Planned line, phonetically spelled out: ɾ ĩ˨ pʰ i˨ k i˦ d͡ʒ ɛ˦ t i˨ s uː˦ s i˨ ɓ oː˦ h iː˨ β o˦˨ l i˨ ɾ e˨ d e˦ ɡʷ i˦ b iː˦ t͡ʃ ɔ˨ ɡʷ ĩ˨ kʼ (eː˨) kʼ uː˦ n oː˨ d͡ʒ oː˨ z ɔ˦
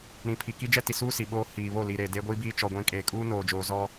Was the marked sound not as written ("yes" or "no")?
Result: no